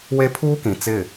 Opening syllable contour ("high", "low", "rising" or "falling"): high